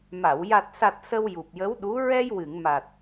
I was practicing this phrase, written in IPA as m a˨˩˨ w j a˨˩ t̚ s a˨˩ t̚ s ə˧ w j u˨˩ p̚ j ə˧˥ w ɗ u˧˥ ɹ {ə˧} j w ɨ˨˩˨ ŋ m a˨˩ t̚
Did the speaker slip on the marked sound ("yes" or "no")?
yes